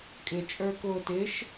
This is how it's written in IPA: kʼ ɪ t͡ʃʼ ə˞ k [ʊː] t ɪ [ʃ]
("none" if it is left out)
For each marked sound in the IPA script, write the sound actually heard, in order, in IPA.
ʊː, ʃ

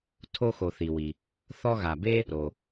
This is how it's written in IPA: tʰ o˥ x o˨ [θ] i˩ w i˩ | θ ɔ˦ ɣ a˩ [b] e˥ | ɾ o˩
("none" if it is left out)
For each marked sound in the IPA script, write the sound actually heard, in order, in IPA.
θ, b

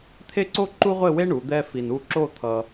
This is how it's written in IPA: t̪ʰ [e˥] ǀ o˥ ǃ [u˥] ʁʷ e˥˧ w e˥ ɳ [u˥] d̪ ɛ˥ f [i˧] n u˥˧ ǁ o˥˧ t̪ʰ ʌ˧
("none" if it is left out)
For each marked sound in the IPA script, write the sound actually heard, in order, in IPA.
e˥, u˥, u˩˧, i˧

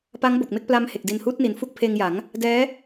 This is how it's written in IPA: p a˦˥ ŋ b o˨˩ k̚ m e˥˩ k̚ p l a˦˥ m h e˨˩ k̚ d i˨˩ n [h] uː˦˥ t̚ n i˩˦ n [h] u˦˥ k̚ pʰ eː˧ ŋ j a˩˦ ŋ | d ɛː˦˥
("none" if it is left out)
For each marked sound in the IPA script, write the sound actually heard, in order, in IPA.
h, f

